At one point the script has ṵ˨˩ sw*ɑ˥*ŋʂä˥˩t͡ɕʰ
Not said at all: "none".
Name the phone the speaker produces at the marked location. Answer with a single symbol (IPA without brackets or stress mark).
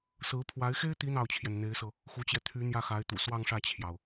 ɑ˥˧